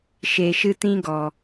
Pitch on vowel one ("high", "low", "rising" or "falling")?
low